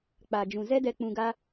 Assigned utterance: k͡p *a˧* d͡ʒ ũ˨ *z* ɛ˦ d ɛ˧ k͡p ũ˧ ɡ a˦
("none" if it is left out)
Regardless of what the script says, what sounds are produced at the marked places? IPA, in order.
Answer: a˨, z

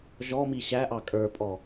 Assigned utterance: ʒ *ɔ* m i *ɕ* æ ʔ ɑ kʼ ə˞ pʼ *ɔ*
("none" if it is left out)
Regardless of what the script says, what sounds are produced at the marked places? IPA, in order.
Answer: ɔ, ɕ, ɔ

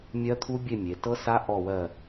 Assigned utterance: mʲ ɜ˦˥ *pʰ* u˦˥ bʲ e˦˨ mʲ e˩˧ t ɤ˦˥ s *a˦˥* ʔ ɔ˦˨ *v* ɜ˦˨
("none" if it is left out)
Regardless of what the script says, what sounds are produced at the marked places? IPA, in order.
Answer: t̪ʰ, a˦˥, w

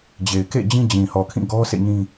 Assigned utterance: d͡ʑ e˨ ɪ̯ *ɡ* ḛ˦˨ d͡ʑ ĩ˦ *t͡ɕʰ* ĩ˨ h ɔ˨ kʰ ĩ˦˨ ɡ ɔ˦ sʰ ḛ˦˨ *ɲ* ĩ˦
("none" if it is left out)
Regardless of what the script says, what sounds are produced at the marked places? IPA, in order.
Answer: k, d͡ʑ, ɲ

